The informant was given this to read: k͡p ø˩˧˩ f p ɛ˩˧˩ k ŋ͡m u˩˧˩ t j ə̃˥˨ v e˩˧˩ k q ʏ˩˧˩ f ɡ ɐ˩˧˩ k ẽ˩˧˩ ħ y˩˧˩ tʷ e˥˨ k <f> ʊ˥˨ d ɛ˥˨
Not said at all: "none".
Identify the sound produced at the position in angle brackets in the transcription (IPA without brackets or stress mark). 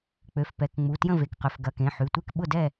ɓ